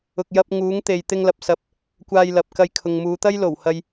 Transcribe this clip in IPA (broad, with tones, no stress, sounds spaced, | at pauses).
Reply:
ʊ˧ k̚ j ɐ˥ p̚ ŋ uː˨˥ ŋ t̪ e˨ j t̪ ɪ˧ ŋ l ɐ˨ p̚ s ɐ˨ p̚ | kʷ aː˧ j l ɐ˨ p̚ k ɐ˧ j kʰ ʊ˨ ŋ m uː˨˧ t̪ ɐ˥ j l o˨˩ w h ɐ˨ j